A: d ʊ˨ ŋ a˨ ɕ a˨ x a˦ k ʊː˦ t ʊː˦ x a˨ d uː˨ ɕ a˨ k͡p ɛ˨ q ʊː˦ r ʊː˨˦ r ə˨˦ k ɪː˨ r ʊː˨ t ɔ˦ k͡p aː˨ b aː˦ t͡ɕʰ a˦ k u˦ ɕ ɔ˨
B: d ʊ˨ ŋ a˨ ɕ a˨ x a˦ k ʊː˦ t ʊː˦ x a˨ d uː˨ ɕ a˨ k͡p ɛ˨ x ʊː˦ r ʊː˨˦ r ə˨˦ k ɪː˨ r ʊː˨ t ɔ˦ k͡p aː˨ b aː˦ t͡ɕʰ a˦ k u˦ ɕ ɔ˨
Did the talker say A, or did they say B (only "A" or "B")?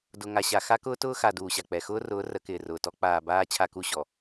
B